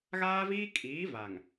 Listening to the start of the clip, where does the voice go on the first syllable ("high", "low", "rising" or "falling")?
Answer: high